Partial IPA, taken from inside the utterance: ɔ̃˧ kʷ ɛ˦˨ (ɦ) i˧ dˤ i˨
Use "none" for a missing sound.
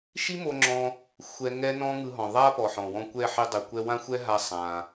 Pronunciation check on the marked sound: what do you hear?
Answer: ħ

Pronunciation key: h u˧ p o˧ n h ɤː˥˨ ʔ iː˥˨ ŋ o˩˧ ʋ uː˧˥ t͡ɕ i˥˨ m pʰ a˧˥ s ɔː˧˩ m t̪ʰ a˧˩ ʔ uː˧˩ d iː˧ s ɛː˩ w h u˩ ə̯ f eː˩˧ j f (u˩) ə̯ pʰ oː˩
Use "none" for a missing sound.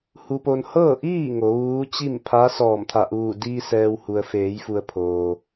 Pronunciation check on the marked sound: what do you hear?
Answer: u˩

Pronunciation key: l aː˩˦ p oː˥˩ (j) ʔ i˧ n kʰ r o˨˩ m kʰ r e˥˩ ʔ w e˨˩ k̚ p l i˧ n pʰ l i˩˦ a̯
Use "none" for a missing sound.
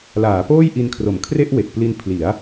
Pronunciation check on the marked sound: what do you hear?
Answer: j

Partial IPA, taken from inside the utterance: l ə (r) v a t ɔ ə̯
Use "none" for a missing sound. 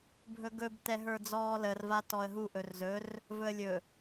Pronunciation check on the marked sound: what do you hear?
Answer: r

